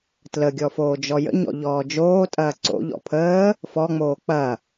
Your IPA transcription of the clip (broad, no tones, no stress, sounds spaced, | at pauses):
t l ə ɡʲ ɔ f oː d͡ʒ ɔ j ə̰ ɲ ɔ̰ ʎ ɔː d͡ʒ oː tʼ ɐː ǀ o̰ ʎ ɔ̰ pʰ əː | f ɔ ŋ͡m oː k͡p ɐ